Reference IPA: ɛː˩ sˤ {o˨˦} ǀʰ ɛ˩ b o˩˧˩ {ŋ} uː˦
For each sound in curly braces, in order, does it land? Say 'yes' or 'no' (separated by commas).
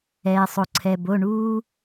no, no